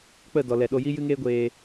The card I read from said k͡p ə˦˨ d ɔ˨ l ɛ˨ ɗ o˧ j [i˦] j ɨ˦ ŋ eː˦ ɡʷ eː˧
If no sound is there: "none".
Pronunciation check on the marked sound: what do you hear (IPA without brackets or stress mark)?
i˦